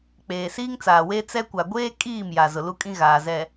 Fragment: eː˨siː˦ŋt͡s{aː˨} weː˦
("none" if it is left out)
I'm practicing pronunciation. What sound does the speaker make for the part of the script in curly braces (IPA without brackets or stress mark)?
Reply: aː˨